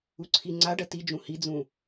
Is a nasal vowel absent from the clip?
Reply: no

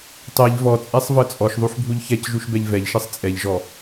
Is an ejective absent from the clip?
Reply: no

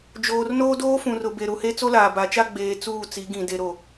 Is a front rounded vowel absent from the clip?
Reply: yes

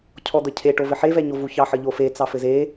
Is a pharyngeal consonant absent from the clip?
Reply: no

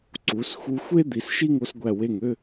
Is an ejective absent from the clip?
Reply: yes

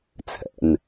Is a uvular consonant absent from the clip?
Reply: yes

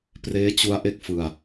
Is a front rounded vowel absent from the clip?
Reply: yes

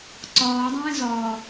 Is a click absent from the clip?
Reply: no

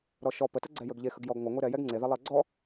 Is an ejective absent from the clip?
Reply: yes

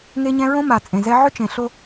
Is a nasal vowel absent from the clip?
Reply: no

